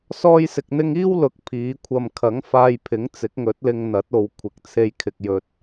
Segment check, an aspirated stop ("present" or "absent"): present